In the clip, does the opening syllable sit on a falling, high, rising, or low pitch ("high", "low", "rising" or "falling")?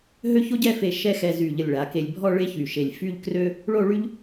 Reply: high